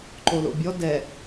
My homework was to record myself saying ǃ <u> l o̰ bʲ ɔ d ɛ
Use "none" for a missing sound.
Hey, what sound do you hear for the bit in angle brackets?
o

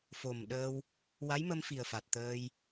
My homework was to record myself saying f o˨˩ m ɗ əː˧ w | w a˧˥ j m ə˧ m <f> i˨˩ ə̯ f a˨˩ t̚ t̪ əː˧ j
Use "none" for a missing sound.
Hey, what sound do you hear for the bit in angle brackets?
f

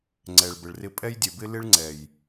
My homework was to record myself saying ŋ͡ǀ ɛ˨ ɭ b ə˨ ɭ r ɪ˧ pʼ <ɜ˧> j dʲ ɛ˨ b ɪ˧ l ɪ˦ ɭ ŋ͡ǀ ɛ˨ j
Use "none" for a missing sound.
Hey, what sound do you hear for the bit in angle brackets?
ɛ˧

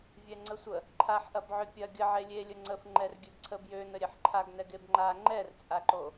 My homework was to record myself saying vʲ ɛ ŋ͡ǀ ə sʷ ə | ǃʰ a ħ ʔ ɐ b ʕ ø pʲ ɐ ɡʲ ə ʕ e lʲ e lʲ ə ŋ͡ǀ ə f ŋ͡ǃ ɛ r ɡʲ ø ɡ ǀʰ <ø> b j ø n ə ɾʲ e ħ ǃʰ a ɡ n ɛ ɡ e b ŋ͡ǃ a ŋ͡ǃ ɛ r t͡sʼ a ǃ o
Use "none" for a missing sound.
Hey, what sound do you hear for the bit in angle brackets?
ə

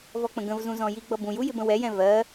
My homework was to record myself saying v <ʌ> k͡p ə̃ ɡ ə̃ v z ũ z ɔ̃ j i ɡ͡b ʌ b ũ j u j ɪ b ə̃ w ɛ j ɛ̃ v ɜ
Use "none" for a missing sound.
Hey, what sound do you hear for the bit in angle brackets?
ɔ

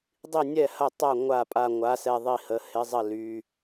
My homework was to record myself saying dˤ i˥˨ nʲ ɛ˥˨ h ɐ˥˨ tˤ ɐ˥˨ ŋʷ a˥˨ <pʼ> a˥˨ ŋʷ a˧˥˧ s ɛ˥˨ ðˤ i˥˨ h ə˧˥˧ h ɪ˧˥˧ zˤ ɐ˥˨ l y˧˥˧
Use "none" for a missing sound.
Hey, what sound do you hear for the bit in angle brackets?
pʼ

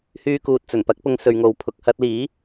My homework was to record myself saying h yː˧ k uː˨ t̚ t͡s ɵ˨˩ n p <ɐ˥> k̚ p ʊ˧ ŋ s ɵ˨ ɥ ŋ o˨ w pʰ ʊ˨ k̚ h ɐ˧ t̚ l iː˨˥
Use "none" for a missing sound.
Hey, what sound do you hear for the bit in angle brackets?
ɐ˨˥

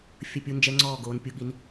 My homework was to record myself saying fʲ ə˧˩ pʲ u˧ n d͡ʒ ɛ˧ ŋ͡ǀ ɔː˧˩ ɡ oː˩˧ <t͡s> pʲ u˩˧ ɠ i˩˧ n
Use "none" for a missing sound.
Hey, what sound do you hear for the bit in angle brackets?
n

